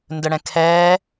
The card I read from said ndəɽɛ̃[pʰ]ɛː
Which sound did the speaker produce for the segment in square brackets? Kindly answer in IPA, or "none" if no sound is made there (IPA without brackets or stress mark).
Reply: kʰ